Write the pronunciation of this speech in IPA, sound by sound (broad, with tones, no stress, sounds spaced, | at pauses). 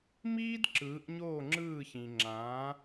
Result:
m iː˥ d ǁ ɯː˩˥ ʔ ɲ oː˥˩ ŋ͡ǁ ɯː˥˩ ç ĩ˩ ŋ͡ǁ ãː˩˥